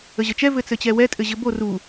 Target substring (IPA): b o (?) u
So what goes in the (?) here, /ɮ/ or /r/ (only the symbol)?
r